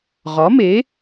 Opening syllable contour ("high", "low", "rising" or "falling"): rising